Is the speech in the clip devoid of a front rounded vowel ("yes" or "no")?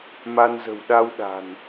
yes